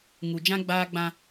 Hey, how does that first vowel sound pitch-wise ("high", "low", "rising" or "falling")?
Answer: low